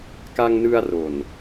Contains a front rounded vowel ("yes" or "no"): no